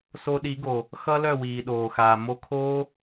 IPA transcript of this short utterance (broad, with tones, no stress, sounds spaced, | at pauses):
s o˧ ɗ i˨˩˦ ɡ o˩ | x ʌ˦˥ l œ˥˩ w iː˩ ɗ oː˩ x aː˩ m o˧ kʰ oː˦˥